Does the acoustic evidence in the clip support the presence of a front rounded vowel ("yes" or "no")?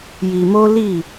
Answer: no